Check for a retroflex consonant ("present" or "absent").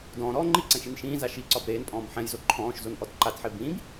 absent